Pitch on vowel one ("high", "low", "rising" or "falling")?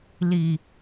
low